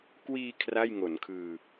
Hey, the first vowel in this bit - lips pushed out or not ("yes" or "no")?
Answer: no